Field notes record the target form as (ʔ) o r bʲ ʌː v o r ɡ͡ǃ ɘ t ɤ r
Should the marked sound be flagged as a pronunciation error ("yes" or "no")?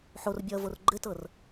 yes